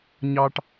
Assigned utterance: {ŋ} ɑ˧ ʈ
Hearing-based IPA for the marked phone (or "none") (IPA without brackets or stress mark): ɲ